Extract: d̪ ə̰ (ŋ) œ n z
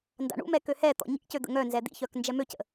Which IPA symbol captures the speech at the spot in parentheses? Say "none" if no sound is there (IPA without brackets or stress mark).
ŋ